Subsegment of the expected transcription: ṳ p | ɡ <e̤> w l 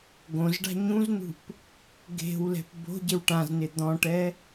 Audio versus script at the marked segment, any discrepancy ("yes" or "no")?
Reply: no